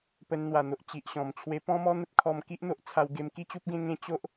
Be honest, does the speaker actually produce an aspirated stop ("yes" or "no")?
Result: yes